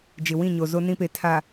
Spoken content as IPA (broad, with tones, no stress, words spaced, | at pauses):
d͡ʒɪ˨wĩ˦˨ɲo˨zo˦ nĩ˦pe˨ tʰa˨